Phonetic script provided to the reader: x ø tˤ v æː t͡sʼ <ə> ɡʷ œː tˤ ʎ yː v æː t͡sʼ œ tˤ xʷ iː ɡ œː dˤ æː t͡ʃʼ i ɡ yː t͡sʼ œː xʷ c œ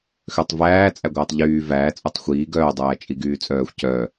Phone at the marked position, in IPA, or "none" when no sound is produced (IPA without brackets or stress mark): æ